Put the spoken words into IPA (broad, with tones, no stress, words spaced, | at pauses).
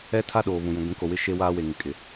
ɛ˦tʰa˦ ɗoː˨βũ˨jũ˨ ɡʷĩ˨˦ko˨wɪ˦ ʃe˦waː˦ we˨ŋɪ˨kʼɪ˨